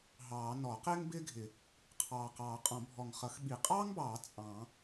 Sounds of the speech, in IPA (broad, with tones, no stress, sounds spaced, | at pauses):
ɦ ɑː˨˩˦ n ɔ˨˩˦ q ɪː˥ ŋ b ɪː˥ ɡʱ ɪ˨˩˦ | qʰ ɑː˨˩ q ɑː˨˩˦ qʼ ɔ̃˨˩˦ bʱ ɔ˨˩ ŋ χ ʌ˨˩˦ x ɓ i˨˩ qʼ ɑː˥ ŋ b ɑː˨˩˦ t͡sʼ ɑ̃˨˩˦